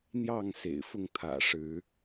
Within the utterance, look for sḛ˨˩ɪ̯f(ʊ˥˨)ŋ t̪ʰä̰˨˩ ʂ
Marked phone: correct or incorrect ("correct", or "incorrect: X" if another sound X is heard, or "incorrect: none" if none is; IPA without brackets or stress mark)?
correct